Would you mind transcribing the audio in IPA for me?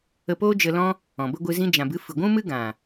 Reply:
ə˧ p oː˦ d͡ʒ ə˧ l ɔ̃˦ | ɔ̃˨ b ə˦ ɡʷ ɨ˧ z ĩ˦ d͡ʒ ã˨ b ɨ˨˦ f ɨ˨ ɡʷ ũ˦ m ɨ˦ ɡ ã˨

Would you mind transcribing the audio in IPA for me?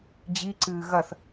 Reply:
d͡ʑ i ǀ ɨː ɣ ɐ θ

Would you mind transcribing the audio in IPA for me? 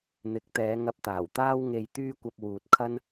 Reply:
n̪ ɪ˨˥ k̚ t̪ ɛː˨˧ ŋ ɐ˧ p̚ t̪ aː˨˩ w t̪ aː˥ w ŋ e˧ j t̪ yː˥ kʷ ɐ˧ p̚ w uː˨ t̚ kʰ ɐ˥ n

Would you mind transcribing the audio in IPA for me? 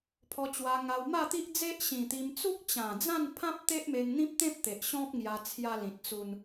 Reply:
pʰ ɔ˧ t͡ɕ w a˧ ŋ a˧ w m a˥˧ t̪ i˦ ʔ d͡z e˦ ʔ ɕ ĩ˨˩ t̪ i˧ m t͡s u˦ k̚ t͡ɕ ã˨˩ d͡z ã˥˧ n pʰ ã˦ p̚ t̪ e˦ ʔ m e˧ ŋ n̪ ĩ˦ p̚ t̪ ẽ˦ p̚ t̪ e˨ ʔ ɕ ɔ̃˦ p̚ ŋ j a˧ t͡sʰ j a˧ l ĩ˨ t̚ t͡s u˧ n

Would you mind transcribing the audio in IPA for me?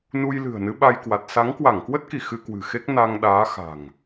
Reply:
n u˧ j l ɨ̤˨˩ ə̯ n ɨ˨˦ ɓ a˧ j k w a˨˩ t̚ s a˨˦ ŋ k w a˧˩ ŋ k w ə˦˥ t̚ k i˧˩ x ɨ˧ k w ɨ̤˨˩ x e˦˥ k̚ n a˧ ŋ ɗ aː˨˦ x a̤˨˩ ŋ

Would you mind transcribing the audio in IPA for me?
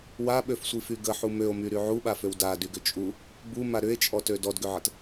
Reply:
w a ɓ ø f sʷ i f y ɡ ə ħ u m ø o̯ m y ɾ y ʕ u ɓ a f ø w d a d y ɡ ʏ t͡ʃʼ u | b u m a ɾ ʏ e̯ t͡ʃʼ ɔ t ø d ɔ d ɡ ʏ ʕ ə t

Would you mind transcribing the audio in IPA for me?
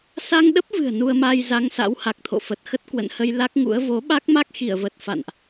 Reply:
s a˧ ŋ ɗ ə˦˥ p̚ v ɨ̤˨˩ ə̯ n u˧ ə̯ m a˧ j z a˧ ŋ s a̰˧˥ w h a˨˩ k̚ t̪ʰ o̰˧˨ f ə˨˩ t̚ x ə˦˥ t̚ k w ə̰˧˨ n h ə˧ j l a˦˥ k̚ ŋ ṵ˧˥ ə̯ v o˨˦ ɓ a˦˥ k̚ m a˦˥ k̚ x i˧˩ ə̯ v ə˨˩ t̚ f a̰˧˨ n ʔ

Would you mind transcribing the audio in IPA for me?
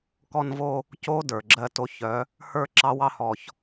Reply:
k ɔ˦ n v o˦ | c o˦ d ə˞˨ ɡ͡ǁ ɜ˦ t o˦ ç œ˨˦ | h ə˞˦ ǁ ɑ˦ w ɑ˦ h ɔ˨ ç

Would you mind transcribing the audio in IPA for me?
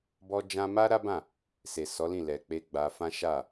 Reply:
b ɔ˦ d͡ʒ ã˦ m a˦ ɾ a˦ b ã˦˨ | s e˨ s ɔ˨˦ l ĩ˦˨ l ɛ˨ k͡p e˧ ɡ͡b a˧ f ã˦ ʃ a˦˨

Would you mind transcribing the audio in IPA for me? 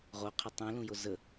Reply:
ʁ o qʰ ə tˤ ũ l ũ j o z ə

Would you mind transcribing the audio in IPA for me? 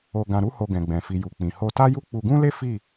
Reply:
o˧ ɡ ã˧ ɾ u˦ h o˧ ɡ ɛ̃˨ ɡ͡b ɛ̃˨ f i˨ j u˨ k͡p ĩ˨ h o˧ t a˦ j u˦ k͡p u˧ ɡ ũ˦ l e˦ f i˦˨

